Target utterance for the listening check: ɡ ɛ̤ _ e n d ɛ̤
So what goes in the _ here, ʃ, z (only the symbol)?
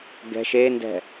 ʃ